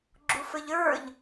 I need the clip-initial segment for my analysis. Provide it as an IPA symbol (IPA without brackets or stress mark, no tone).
ɡ͡ǁ